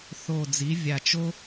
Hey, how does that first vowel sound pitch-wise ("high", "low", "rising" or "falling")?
low